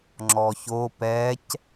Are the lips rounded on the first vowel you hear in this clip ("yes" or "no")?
yes